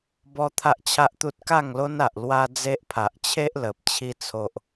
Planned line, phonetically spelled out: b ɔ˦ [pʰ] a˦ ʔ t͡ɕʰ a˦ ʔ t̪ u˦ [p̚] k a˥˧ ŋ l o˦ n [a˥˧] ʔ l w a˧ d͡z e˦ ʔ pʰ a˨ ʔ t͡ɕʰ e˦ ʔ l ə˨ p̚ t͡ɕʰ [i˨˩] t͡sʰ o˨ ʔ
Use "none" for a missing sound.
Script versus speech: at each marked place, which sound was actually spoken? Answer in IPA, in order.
t̪ʰ, t̚, a˨, i˧

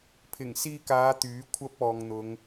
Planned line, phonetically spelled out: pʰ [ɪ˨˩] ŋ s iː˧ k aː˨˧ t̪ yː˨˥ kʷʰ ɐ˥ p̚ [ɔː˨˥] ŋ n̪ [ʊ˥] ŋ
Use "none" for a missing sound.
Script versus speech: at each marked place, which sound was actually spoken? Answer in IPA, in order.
ɪ˨˩, ɔː˨, ʊ˨˧

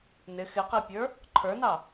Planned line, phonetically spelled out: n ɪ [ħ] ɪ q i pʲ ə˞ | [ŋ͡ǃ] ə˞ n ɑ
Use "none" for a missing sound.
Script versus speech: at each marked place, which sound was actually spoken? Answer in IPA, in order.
x, ǃʰ

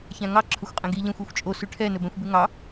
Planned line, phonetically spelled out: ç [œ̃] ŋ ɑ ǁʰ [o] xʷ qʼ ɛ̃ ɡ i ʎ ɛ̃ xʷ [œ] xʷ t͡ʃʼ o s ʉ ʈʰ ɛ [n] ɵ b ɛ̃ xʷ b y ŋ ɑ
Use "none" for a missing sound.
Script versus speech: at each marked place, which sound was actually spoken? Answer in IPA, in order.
æ̃, ɵ, æ, n

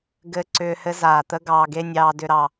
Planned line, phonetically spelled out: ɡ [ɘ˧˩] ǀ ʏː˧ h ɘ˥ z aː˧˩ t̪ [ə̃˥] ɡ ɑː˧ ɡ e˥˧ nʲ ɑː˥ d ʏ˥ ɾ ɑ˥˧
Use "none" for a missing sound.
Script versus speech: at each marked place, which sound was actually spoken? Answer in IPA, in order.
ɘ˧˩, ə˥

